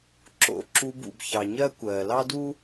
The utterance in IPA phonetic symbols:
ǁo̰˧ ǁu˧bṵ˨bçɑ˨ɲɜ˦ kʷɜː˨lɑ˦ du˦

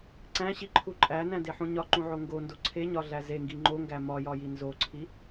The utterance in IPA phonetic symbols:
ǀæ̃ɕiǃʰu ǃʼænæ̃deħũ ɲɒǃũʕo ŋɡondo ǀʰeɲɒɮæ zeŋɡi ŋ͡ǃoŋɡæ mɒjɒji nzoǀʰi

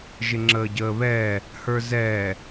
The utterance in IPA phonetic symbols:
ʒɪŋ͡ǁəːɟəːβɛː | hə˞zɛː

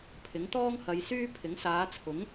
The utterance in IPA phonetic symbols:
pʰɪ˨˥ŋt̪ɔː˥ŋhɐ˨˧j syː˥pʰɪ˨˥ŋ saː˨˧t͡sʰʊ˨˥ŋ

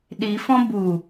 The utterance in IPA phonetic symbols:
ɗifɔ̃ bu

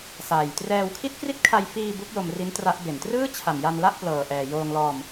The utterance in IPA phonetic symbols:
saː˨˩jtrɛː˧w kʰi˥˩t̚kri˥˩t̚kʰa˧jfiː˧ bu˦˥k̚ jo˧mri˦˥n tra˦˥ʔbe˨˩n trɯː˥˩t͡ɕʰa˨˩mja˧n la˥˩ʔplɤː˨˩ʔɛː˨˩ joː˧ŋlɔː˧m

